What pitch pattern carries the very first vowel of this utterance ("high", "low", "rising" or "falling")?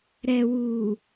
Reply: low